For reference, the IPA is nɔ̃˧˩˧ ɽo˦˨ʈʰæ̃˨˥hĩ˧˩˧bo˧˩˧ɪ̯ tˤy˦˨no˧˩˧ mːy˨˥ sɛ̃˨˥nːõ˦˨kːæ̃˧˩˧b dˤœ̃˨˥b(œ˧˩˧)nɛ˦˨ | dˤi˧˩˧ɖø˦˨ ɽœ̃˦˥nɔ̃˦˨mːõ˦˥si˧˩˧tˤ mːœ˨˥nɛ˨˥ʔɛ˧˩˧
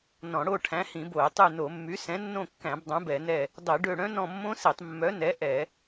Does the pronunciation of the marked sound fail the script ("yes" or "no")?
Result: yes